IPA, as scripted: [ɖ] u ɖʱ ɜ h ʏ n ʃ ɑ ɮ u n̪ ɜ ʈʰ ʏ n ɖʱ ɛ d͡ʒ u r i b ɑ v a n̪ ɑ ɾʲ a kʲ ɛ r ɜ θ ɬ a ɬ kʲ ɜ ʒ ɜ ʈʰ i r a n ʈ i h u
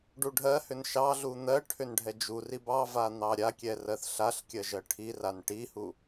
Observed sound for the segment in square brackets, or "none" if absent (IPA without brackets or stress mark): ɖ